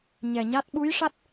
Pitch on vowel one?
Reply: low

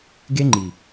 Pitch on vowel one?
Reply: high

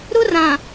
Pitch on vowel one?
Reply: high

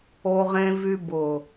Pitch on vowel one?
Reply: low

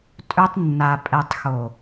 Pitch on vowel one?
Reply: high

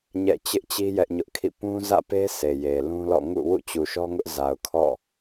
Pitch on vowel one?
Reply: falling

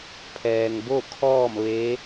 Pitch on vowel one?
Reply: low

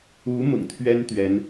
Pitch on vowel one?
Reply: rising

